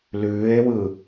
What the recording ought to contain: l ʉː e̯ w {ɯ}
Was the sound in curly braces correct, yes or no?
yes